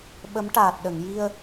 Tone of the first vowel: rising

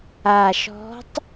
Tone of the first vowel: low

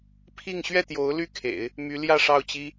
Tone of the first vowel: falling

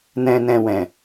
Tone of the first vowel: low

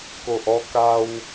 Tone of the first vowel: low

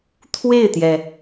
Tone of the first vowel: falling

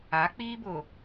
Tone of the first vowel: rising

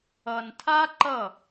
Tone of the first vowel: low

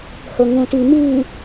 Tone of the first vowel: low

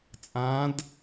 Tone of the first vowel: rising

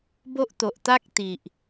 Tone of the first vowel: high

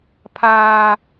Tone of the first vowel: high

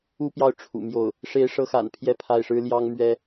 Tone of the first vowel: high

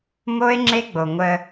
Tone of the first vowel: high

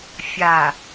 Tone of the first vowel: low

